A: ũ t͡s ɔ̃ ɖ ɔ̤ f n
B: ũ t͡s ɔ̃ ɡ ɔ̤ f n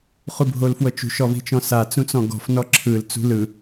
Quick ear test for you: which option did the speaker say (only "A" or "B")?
B